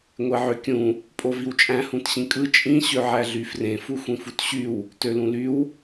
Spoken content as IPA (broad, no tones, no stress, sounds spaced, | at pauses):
ŋʷ e ʕ ø kʲ ũ | pʼ o v i w t͡ʃʼ æ̃ h ũ t ɕ ĩ kʼ ɯ t͡ʃʼ ĩ ɕ ø ʕ æ ɮ y f r ẽ f u xʷ ĩ f u t ɕ y w | t ø l ũ l y w